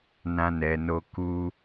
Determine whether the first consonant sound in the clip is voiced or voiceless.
voiced